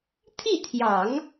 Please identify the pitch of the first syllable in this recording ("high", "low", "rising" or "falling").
falling